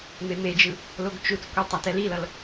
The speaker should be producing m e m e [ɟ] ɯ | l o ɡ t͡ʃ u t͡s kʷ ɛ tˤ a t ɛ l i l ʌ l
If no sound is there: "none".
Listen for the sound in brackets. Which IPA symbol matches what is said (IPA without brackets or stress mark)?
d͡ʒ